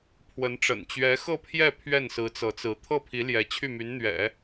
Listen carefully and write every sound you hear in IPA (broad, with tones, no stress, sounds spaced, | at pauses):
pʰ w ə˧˥ n ʈ͡ʂ ə̰˨˩ n t͡ɕ ɥ ɛ˧˥ x ɤ˥˧ pʰ j ɛ˥˧ pʰ ɥ ɛ˥˩ n s ɹ̩˧˥ t͡s ɤ˧˥ t͡s ɹ̩˧˥ t̪ʰ ɤ˥˩ pʰ i˧˥ l j ɛ˧˥ t͡ɕʰ y˥˩ m y˧˥ n n̪ ɥ ɛ̰˨˩˦